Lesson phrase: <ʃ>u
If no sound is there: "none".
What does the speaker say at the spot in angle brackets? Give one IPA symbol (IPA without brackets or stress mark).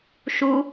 ʃ